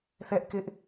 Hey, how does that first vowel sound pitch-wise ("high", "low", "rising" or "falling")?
high